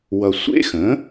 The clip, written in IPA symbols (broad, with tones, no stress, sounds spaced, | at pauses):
w ʌ˧ sʷ ḛ˦˥ x ə̃˩˥